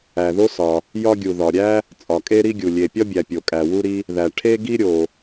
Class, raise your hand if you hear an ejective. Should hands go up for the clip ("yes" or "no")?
yes